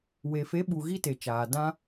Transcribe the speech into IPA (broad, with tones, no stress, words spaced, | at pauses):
we˨fe˨˦ɓu˨ ɣi˦te˨t͡ʃaː˨ dã˧